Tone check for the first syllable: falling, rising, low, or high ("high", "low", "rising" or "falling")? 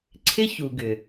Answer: high